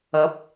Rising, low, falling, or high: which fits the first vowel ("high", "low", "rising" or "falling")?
rising